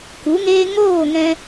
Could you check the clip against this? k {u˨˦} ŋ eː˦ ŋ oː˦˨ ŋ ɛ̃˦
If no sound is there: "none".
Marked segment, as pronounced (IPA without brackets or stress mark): u˨˦